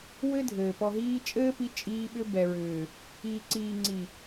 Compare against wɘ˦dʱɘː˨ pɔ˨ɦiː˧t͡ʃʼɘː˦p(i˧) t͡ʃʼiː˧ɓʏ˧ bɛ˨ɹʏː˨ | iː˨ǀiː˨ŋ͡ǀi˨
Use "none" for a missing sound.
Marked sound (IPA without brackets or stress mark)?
i˧